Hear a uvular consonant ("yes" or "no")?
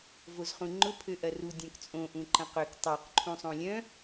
yes